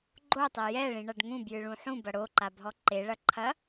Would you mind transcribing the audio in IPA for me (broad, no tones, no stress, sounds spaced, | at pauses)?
ɡ͡ǃ o tˤ ɛ j ɛ ɭ ĩ ɳ ɐ ɖ ŋ ũ b j ɨ ɭ ũ ħ ũ b ɐ ɽ o ǃ a bʱ ɔ ǃ e ɭ ɐ ǃʰ ɐ